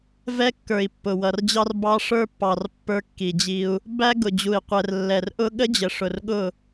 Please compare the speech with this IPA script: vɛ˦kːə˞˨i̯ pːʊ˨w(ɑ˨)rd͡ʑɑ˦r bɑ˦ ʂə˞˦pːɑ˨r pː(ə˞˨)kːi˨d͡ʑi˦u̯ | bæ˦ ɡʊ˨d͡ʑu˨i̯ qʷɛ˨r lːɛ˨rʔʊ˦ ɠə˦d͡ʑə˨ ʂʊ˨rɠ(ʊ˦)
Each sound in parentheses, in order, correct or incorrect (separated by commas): incorrect, incorrect, incorrect